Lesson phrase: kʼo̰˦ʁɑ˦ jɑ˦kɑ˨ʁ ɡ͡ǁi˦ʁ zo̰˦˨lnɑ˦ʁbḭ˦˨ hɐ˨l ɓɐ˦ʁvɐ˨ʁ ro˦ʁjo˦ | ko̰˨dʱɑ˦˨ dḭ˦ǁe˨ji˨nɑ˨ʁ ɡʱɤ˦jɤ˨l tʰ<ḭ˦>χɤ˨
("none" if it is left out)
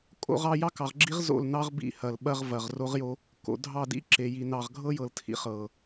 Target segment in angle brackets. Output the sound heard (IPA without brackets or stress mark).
ḭ˦